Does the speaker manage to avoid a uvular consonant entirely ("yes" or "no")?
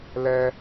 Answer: yes